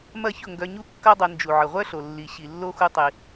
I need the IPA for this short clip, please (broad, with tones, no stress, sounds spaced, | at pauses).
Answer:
m ɐ˦˨ ç ʊ˦˨ ŋ ɡ œ˧ ɲ u˦ kː ɐ˦ dˤ ɐ˧ n d͡ʒ u˨ ʕ ə˨ ʁʷ œ˦ ɬ o˨ lː i˧ ɕ i˨ lː o˦ x u˦ tˤ i˧